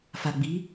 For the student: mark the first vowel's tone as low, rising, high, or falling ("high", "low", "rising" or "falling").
low